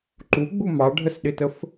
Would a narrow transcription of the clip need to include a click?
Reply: yes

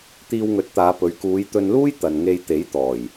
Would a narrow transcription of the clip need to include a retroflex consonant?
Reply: no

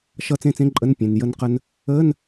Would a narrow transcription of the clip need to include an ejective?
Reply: yes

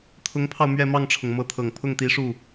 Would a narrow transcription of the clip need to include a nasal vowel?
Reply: no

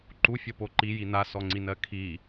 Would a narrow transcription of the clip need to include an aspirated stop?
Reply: yes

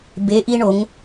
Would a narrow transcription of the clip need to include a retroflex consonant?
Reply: yes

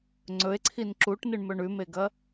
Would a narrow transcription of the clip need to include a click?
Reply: yes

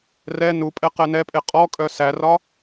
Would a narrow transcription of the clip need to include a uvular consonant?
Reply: yes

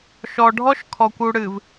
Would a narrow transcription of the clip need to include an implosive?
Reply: no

